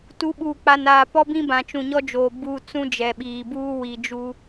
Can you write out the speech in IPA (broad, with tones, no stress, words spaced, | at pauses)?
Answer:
tu˨˦ɓuː˨k͡pa˨naː˨ pɔ˦bĩ˦ bã˨t͡ʃũ˨ɲɔ˦d͡ʒoː˨ buː˨ t͡sũ˦d͡ʒɛ˨ɓiː˨buː˦ wi˨d͡ʒu˦